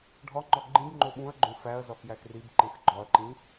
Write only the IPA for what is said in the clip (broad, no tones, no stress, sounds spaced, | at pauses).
ɖʱ ɒ ŋ͡ǃ ɒ ɡ͡ǃ ĩ b ŋ͡ǃ o ɓ ũ ɐ̯ ɡ͡ǃ õ f æ ɐ̯ z ɒ x j æ x r i b ǃ ẽ x ɡ͡ǃ ɒ ɐ̯ ǃ ĩ